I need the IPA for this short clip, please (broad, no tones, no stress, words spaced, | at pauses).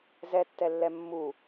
zɛtːɛlːɛ mːu